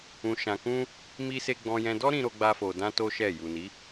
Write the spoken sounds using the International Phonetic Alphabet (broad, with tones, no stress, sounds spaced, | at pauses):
ũ˧ ʃ ã˧ k ũ˦ | m i˧ s e˧ ɡ͡b ɔ̃˧ j ɛ̃˧ d ɔ˦ ɾ ĩ˧ ɾ o˧ ɡ͡b a˧ f o˧ d ã˦ t o˦ ʃ ɛ˦˨ j u˨ n i˨˦